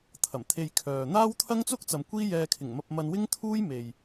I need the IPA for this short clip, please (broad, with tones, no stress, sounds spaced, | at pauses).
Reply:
t̪ʰ ɐ˨˩ m t̪ʰ e˧ j kʰ œː˨ n̪ aː˥ w t̪ʰ ɐ˥ ŋ t͡s ʊ˥ k̚ t͡s ɐ˨ m kʷ iː˥ j ɛː˧ kʰ ɪ˨˩ ŋ m ɐ˧ p̚ m ɐ˧ n w ɪ˥ ŋ t̪ʰ uː˥ j m e˨ j